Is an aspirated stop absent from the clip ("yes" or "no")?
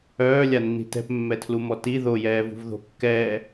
no